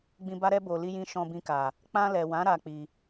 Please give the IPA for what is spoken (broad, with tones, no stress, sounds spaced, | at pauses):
ɡ͡b ĩ˧ b a˦ ɾ ɛ˦ b o˧ l i˦ j ĩ˦ ʃ ɔ̃˧ b ĩ˧ k a˨ | k͡p ã˧ l ɛ˨ w ã˨˦ ɾ a˦ k͡p i˧